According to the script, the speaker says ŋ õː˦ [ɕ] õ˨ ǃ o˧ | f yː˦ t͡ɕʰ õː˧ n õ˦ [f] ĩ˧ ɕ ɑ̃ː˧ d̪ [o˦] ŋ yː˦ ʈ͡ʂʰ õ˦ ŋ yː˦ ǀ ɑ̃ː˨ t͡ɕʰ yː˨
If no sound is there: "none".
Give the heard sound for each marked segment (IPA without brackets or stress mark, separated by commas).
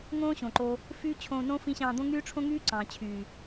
ɕ, f, õ˦